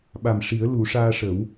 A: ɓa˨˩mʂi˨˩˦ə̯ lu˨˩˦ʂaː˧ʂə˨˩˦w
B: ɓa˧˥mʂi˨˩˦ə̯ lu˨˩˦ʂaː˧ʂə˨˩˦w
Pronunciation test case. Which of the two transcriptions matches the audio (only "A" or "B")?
A